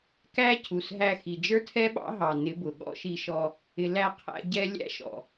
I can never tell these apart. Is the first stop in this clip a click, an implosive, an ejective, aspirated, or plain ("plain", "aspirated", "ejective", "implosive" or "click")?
plain